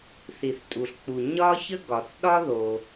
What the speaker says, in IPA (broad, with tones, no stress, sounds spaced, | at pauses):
θ i˩ θ tʼ u˩ ɬ k͡p u˩ ɲ ɒ˥ ç ə˥ ɡ ɒ˩ θ ɗ ɒ˥ ð o˩